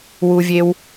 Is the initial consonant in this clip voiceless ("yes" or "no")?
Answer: no